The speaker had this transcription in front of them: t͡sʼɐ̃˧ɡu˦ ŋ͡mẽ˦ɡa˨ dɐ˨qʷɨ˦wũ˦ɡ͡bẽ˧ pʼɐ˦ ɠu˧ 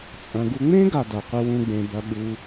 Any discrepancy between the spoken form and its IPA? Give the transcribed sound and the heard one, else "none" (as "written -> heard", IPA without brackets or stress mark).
pʼ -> b